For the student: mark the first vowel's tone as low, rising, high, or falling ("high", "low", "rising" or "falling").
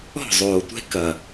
falling